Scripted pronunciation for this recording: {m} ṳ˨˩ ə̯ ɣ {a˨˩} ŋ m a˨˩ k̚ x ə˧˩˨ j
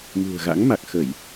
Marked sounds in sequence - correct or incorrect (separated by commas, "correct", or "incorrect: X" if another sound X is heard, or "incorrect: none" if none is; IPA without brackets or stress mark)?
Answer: correct, incorrect: a̰˧˥